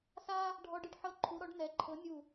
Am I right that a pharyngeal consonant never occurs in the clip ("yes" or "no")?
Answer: no